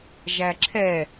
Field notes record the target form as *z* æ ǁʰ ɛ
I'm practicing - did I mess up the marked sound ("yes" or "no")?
yes